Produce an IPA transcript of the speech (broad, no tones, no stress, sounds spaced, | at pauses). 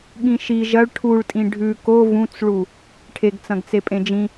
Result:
ɠ ĩ ʃ i ʒ ɐ ɭ ʈʰ u ɭ tʼ ĩ ɖʱ ʉ k o v ũ t͡s ɭ u | ʈʰ e ɡ t͡s ɐ̃ ɡ t͡s e pʼ ẽ d͡ʒ ĩ